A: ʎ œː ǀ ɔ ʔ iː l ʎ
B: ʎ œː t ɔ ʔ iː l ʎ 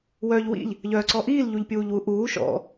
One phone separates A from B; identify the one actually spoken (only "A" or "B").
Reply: A